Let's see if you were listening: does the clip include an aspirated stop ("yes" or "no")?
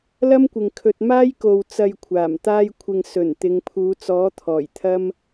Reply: yes